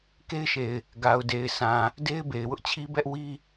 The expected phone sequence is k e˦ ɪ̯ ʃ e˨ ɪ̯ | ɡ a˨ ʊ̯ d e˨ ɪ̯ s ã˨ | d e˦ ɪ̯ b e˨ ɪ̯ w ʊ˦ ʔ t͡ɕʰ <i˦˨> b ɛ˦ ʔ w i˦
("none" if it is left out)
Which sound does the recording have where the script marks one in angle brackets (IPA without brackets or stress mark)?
i˦